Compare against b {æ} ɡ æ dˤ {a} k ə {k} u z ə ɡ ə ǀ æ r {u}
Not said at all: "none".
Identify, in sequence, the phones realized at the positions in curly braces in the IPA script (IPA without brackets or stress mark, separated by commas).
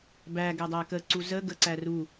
æ, æ, ǀ, u